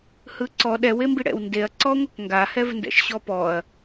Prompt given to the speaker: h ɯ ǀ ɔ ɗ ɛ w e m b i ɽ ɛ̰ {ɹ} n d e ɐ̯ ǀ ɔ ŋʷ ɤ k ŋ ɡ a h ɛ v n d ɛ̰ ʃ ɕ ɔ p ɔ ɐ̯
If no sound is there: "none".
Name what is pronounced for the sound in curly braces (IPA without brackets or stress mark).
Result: w